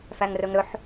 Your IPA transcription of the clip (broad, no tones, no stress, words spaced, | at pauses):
fæŋrɵŋɾɵħ